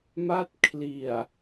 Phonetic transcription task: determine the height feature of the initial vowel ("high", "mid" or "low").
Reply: low